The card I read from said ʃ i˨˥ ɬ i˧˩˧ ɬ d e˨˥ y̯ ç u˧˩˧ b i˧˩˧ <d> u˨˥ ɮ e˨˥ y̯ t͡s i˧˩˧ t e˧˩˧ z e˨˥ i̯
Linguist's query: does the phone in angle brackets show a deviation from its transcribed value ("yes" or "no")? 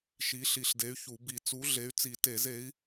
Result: yes